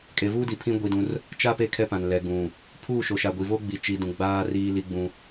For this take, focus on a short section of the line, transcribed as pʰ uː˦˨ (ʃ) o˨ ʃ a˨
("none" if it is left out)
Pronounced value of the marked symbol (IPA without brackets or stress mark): ʃ